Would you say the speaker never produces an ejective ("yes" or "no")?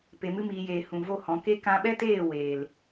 yes